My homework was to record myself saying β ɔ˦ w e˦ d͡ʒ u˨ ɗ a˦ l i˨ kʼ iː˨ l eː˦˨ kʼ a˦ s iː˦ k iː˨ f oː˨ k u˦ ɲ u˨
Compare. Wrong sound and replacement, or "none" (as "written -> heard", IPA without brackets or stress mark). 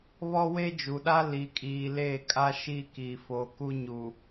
s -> ʃ